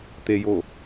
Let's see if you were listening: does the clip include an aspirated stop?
no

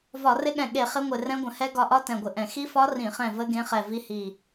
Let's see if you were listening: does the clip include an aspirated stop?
no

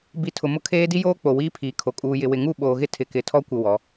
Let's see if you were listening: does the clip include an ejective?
yes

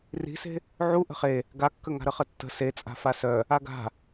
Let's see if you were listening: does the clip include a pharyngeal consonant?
yes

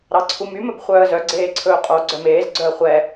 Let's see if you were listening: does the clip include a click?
yes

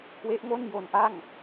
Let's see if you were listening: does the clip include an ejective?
no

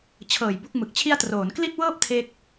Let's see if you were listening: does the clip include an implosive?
no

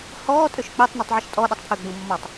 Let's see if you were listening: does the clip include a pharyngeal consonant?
yes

